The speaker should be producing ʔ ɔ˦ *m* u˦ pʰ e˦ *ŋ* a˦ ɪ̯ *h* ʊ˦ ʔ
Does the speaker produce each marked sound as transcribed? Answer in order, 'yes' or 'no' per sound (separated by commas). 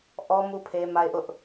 yes, no, no